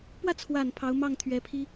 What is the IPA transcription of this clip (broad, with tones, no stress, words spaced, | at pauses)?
pwä˥˩ t͡sʰwa˨˩n pʰɑ˧˥ʊ̯ mɑ˥˩ŋt̪ʰɥɛ˧˥pʰi˥